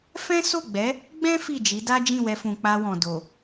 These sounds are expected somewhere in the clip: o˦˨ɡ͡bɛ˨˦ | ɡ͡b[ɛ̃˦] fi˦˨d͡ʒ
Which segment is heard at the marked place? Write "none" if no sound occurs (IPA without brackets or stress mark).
ɛ̃˦